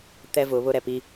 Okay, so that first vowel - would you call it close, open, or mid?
mid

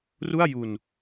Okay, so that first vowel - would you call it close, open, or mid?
close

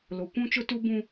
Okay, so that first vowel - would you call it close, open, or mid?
mid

